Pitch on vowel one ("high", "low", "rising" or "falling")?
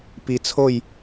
low